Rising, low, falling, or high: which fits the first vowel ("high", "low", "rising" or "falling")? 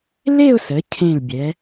falling